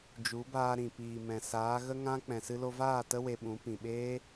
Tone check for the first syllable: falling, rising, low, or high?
rising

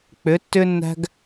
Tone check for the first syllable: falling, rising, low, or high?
rising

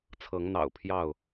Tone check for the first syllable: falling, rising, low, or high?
rising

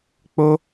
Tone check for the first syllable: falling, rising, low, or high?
high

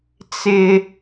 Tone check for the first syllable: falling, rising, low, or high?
low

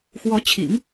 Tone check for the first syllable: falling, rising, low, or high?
rising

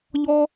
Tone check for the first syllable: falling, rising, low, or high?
high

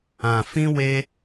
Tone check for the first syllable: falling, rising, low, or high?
low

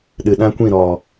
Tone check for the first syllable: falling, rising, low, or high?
low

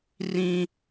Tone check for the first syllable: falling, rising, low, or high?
high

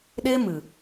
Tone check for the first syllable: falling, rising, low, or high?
high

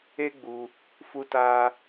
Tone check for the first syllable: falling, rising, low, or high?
high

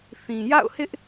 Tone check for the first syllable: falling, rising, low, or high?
low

